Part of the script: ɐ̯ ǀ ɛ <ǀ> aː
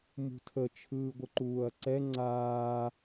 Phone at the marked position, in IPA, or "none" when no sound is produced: ŋ͡ǀ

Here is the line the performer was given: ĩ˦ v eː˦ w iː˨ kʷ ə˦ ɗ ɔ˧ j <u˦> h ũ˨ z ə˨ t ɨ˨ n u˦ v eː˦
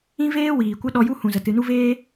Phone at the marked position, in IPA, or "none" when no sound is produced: u˦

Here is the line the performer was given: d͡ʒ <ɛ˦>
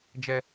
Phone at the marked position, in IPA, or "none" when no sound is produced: ɛ˦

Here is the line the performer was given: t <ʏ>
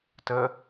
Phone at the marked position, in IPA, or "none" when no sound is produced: ə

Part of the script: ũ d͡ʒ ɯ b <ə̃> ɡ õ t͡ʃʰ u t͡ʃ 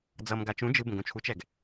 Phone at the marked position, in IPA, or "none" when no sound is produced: ə̃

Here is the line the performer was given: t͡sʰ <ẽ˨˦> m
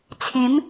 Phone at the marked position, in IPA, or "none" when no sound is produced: ẽ˨˦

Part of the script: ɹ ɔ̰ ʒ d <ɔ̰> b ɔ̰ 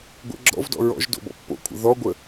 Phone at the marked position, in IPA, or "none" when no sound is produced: o̰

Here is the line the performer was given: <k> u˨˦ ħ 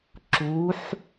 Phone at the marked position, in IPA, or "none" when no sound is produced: ǁ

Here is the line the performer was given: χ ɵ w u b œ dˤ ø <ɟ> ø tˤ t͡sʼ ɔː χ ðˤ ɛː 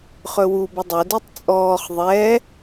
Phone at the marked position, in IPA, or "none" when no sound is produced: d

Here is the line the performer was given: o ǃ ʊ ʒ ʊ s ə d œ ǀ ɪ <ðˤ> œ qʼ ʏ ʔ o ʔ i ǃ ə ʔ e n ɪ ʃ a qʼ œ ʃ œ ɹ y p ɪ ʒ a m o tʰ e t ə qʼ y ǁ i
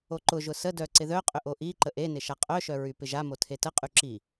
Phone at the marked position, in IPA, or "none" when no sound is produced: ð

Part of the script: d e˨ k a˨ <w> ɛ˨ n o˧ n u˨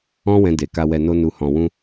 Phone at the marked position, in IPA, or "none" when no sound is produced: w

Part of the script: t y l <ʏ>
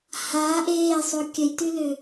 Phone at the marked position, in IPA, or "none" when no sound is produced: ʏ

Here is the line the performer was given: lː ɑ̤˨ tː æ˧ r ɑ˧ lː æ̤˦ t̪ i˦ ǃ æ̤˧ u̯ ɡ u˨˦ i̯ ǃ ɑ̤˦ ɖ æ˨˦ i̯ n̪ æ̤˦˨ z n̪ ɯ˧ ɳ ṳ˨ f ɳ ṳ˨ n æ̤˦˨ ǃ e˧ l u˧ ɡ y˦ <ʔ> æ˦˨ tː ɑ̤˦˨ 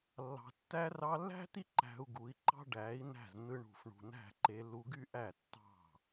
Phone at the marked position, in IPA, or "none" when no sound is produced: ʔ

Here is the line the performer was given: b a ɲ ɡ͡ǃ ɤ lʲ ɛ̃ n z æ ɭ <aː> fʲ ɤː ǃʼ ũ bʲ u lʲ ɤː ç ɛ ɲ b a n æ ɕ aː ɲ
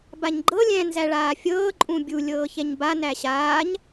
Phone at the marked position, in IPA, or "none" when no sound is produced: aː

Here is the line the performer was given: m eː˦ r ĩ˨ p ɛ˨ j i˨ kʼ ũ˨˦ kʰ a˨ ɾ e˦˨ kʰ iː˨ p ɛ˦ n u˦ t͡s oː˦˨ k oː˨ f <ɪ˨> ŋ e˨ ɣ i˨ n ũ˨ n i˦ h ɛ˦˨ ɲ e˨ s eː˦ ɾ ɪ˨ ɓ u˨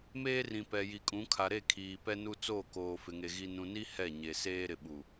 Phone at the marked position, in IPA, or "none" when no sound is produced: ɪ˨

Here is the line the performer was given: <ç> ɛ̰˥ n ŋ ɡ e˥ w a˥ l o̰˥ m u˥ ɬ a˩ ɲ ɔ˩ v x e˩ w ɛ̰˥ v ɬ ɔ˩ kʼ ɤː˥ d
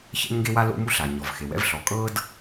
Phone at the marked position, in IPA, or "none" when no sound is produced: ç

